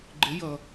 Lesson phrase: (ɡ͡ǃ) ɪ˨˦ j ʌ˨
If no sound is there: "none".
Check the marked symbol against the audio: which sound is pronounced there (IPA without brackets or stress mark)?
ɡ͡ǃ